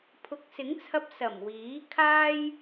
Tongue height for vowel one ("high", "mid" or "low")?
high